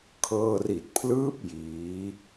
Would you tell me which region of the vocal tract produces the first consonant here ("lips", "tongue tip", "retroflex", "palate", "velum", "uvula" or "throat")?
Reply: velum